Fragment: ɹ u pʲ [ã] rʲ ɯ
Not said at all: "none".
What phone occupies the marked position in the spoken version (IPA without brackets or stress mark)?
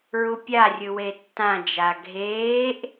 a